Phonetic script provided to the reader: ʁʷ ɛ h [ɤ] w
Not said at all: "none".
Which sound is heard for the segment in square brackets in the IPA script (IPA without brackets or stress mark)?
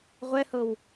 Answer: ɤ